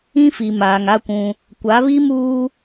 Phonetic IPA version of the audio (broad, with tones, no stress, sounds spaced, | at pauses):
ĩ˦ f i˨ m aː˨ ŋ a˦ kʷ ũ˦ | kʷ a˨˦ β i˦ m uː˦